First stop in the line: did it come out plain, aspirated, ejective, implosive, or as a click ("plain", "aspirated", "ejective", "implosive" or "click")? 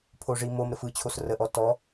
aspirated